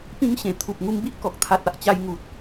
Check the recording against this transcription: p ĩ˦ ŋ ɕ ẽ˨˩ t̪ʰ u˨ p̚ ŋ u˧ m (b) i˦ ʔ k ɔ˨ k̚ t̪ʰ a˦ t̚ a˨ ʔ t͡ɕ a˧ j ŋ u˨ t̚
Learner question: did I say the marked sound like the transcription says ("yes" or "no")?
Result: yes